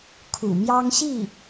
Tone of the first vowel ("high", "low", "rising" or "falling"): low